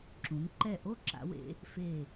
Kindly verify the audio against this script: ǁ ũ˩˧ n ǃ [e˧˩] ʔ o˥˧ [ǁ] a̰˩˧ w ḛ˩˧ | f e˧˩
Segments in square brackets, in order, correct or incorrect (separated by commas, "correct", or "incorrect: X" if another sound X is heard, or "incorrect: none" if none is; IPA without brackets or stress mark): incorrect: ɛ˧˩, correct